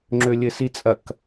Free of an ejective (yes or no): no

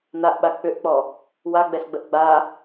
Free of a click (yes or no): yes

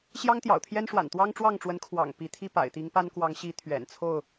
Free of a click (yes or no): yes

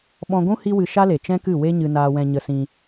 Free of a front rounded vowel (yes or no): yes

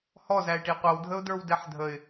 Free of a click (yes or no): yes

